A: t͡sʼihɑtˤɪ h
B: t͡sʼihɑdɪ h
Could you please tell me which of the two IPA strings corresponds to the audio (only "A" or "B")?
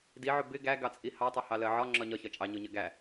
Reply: A